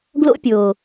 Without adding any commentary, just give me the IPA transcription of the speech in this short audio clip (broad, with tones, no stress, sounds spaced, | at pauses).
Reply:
ɡ l o̰˦ pʲ o˨